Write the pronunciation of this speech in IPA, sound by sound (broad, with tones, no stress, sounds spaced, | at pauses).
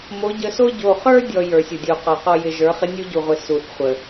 m o˨˦ ɟ ə˨˦ s o˦ ɟ o˨ χ ə˞˦ dʲ ɔ˨ j ə˞˨˦ sʲ o˨ dʲ o˨ q ɔ˨ q ɔ˦ j ɪ˨ ʒ ə˞˨˦ χ ɪ˦ nʲ u˦ ɟ u˨ ʁʷ ɪ˨ s u˨ θ χʷ ə˨